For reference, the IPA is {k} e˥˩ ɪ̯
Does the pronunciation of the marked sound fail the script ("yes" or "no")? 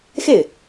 yes